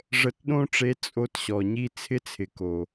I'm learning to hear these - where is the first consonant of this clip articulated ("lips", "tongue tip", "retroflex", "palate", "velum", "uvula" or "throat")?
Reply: retroflex